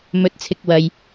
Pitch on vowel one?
rising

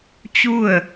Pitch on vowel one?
falling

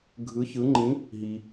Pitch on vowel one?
rising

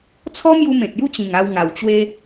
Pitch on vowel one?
high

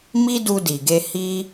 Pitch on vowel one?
high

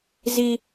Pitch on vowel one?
high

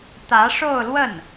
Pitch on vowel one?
rising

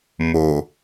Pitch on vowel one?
low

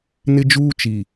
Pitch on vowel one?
high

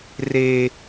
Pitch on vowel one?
high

